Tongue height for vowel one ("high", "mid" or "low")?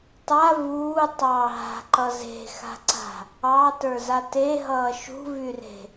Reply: low